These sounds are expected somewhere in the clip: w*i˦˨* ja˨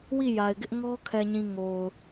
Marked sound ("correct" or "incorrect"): correct